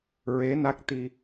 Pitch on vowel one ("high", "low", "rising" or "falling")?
rising